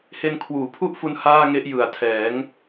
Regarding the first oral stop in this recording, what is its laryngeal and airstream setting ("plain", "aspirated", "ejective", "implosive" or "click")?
aspirated